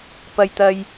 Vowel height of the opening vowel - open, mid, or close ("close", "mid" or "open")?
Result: open